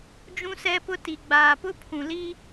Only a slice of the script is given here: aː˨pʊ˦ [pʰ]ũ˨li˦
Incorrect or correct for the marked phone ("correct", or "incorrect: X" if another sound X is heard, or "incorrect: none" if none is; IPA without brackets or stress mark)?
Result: correct